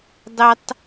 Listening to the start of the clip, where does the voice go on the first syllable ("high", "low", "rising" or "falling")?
high